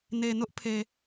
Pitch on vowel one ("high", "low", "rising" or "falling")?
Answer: low